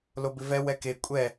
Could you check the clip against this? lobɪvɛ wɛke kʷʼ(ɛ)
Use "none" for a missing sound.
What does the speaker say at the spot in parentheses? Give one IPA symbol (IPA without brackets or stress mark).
ɛ